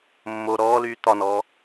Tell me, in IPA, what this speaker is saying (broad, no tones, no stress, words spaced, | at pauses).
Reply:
mːo ɾɔːlyː t̪ɒnɔː